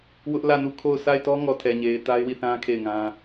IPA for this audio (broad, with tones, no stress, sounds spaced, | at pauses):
w ʊ˦ ʔ l ä˦˨ n u˦˨ kʰ o˦˨ ʊ̯ s a˦˨ ɪ̯ t ɔ˦ ŋ ɔ˨ tʰ ɛ˨ ɲ e˨ ɪ̯ t a˦ ɪ̯ w i˦˨ θ ã˦ kʰ e˦˨ ɪ̯ ŋ ã˦